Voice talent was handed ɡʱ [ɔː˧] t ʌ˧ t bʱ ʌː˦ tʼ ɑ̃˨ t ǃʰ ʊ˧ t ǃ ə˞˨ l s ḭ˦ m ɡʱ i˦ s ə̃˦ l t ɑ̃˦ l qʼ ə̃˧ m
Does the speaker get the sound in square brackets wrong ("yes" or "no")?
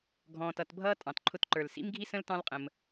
yes